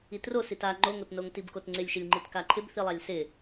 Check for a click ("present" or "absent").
present